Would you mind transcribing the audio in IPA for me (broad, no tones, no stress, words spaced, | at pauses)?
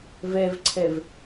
vɛvǀʰɛv